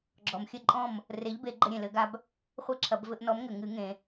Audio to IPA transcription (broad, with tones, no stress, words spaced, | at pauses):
ɡ͡ǁɔ˩mxʲɘ˥˩ ǃʼɔ̃˥˩m | re˨˥ʎbe˨˩˦ ɡ͡ǃɘ˧ɾʲẽ˩lɘ˨˩˦ɡa˧b | χʷe˥ǁʰɐ˨˩˦b vɘ˧ʔnɔ˨˥mŋɘ˩ ŋɨ˨˩˦ŋẽ˩